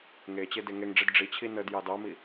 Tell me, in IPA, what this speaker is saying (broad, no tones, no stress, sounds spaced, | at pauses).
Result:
ŋ e t͡ɕ e d e ŋ e ŋ ɖ͡ʐ i d ɖ͡ʐ i t͡ɕʰ i n ə d j ɑ d ɑ m i